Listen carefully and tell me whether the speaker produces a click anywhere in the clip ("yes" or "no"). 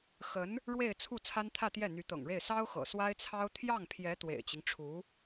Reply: no